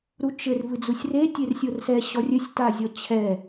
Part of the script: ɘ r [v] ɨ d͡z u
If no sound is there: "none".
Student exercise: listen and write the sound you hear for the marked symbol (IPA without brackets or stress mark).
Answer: v